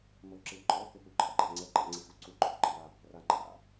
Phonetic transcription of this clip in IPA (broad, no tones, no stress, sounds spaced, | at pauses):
m o ǁ ɪ ǃʼ ɔ h ɪ p u ǃ a̰ ɡ͡ǃ a̰ ŋ͡ǀ ɛ ǃ a̰ ŋ͡ǀ i x u ǀ u ɡ͡ǃ ɔ ǃ i w a | r a ŋ͡ǃ a̰